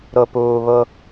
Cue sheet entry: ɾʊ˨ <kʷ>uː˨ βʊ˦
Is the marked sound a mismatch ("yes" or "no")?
yes